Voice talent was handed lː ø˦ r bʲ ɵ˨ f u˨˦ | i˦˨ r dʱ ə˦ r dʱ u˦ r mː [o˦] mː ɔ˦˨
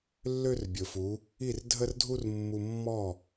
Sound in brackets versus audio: incorrect: u˦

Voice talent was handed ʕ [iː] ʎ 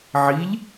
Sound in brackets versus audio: incorrect: i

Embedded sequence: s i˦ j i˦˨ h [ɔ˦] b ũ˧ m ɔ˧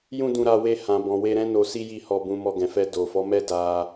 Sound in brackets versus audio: incorrect: ɔ˧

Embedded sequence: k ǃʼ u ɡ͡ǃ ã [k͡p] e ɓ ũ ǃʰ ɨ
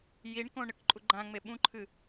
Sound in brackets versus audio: incorrect: ŋ͡m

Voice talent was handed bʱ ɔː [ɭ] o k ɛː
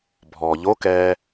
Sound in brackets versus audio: incorrect: ʎ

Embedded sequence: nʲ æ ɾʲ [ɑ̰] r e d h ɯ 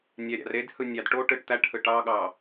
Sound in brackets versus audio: correct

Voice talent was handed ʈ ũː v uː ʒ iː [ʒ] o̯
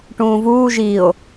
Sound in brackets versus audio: incorrect: none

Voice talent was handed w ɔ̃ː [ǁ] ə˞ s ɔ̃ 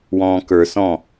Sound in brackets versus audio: incorrect: k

